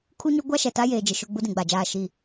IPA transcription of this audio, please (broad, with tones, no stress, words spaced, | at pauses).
kʰu˦ɲʊ˦ ɡʷa˦ʃɛ˨ ta˦jeː˨d͡ʒɪ˨ʃʊ˦˨ ɡ͡bu˦dĩ˨ɡ͡ba˨d͡ʒaː˦˨ ʃi˦˨